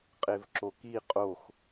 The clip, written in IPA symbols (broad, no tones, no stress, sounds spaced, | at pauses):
qʼ e v ǁ o k i qʼ o x